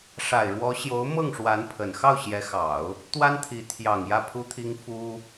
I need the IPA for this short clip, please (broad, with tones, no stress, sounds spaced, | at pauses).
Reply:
ʂ a˨˩ ɪ̯ ɻ w ɔ˧˥ ɕ j o˧˥ ʊ̯ m ɤ˥˩ ŋ ʂ w a˧˥ n pʰ ə˨˩ n x ɑ˥˩ ʊ̯ ɕ j ɛ˧˥ x ɑ˨˩˦ ʊ̯ | t̪ w a˥ n t̪ʰ i˧˥ t̪ʰ j ɑ˨˩ ŋ j ä˥˩ pʰ u˥ t̪ʰ i˥ ŋ f u˥